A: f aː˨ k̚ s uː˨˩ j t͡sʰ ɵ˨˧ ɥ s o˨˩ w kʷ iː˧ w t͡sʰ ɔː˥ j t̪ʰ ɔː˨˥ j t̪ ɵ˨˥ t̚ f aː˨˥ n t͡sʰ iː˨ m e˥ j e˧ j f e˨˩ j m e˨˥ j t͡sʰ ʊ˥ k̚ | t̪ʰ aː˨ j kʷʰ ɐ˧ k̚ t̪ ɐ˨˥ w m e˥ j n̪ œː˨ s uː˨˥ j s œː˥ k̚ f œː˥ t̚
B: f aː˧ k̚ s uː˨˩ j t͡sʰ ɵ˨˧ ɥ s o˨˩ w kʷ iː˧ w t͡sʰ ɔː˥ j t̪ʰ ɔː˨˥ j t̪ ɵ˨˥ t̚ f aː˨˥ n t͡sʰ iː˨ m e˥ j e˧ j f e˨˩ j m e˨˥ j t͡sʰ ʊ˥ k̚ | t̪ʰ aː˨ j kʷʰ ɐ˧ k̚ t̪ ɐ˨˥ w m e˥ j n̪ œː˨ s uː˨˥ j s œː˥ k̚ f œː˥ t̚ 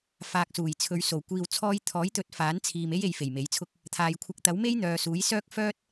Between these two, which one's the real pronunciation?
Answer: A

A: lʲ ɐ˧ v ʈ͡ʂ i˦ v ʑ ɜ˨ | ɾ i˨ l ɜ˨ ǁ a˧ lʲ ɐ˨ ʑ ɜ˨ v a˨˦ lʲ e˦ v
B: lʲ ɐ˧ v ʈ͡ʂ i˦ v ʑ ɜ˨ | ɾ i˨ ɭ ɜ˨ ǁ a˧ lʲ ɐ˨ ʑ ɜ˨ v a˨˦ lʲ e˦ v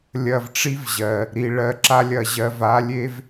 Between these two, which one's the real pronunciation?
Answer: B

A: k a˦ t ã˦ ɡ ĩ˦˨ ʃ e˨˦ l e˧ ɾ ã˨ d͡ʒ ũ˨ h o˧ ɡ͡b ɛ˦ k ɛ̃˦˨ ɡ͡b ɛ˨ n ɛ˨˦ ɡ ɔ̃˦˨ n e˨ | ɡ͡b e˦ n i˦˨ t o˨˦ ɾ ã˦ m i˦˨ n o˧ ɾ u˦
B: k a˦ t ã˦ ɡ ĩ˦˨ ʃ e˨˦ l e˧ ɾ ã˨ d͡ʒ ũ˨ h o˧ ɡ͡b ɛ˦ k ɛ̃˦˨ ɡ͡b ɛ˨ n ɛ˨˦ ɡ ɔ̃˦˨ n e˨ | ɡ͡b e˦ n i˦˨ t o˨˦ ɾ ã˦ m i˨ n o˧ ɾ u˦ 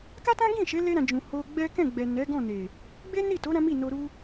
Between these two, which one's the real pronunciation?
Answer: A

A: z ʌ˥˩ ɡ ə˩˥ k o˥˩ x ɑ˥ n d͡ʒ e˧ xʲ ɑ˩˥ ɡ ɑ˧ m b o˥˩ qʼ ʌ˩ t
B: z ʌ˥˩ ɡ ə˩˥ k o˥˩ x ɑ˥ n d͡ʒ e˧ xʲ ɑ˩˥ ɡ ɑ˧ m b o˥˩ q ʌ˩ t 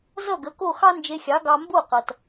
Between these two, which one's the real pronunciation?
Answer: B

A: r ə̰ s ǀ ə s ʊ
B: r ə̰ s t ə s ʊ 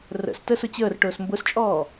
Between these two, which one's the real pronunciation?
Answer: B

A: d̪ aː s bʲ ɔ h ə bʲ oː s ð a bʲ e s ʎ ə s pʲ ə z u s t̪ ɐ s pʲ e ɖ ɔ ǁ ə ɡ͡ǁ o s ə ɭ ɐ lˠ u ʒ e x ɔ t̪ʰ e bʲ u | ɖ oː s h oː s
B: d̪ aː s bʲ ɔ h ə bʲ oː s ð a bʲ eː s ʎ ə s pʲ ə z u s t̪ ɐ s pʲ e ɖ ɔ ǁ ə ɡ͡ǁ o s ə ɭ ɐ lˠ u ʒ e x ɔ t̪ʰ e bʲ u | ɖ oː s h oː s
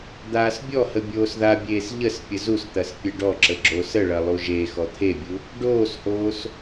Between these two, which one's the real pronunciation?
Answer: B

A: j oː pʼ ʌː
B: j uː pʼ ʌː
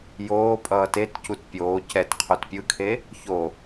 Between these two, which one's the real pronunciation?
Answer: A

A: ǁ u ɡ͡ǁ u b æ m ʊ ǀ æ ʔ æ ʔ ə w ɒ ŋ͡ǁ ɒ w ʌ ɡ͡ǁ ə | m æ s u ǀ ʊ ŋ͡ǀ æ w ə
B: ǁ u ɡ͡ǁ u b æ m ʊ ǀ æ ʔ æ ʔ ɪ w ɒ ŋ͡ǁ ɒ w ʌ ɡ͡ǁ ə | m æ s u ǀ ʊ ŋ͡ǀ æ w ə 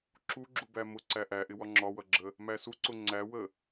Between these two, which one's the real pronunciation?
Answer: B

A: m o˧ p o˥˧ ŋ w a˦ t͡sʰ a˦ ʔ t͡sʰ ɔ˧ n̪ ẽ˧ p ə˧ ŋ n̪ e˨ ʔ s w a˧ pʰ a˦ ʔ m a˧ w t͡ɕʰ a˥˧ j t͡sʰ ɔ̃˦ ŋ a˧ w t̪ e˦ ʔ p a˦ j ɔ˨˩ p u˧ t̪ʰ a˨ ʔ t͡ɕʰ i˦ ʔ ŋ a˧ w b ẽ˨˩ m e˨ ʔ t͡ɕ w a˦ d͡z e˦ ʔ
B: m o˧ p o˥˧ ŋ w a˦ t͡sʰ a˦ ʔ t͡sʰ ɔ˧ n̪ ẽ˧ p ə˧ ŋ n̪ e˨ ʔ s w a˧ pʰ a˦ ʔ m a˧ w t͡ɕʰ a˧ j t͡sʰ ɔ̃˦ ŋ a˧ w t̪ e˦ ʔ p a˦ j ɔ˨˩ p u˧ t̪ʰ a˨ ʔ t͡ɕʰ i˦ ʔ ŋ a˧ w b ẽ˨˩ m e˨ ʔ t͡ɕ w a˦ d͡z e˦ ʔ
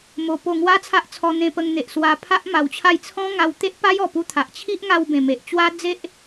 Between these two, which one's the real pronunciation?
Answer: A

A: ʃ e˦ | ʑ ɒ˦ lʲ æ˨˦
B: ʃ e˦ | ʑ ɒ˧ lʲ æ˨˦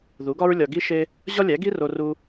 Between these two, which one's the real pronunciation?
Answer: A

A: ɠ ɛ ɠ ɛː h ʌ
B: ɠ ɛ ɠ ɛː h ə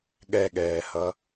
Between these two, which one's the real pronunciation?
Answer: A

